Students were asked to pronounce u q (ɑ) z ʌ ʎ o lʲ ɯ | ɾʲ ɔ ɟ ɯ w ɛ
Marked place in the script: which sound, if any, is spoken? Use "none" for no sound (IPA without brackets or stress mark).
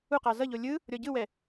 ɑ